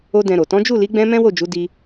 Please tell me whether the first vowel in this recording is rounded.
yes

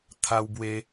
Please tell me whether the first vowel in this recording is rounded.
no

